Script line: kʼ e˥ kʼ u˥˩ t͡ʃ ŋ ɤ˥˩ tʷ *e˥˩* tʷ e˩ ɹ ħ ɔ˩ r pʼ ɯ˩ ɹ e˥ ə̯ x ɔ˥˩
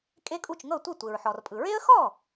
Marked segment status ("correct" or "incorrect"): incorrect